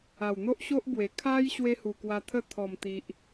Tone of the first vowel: low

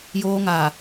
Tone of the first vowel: high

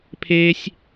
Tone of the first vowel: high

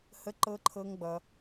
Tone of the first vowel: high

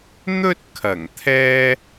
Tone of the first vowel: high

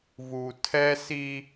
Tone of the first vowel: low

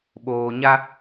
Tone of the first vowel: low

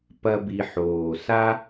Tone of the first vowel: high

